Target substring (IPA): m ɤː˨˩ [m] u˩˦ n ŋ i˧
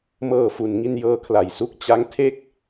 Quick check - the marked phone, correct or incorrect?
incorrect